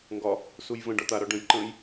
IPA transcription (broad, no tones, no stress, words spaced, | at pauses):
ŋɡɒ | sujvə̃ɖɒ t̪aɾɒ ɖə̃jǃə̃ːj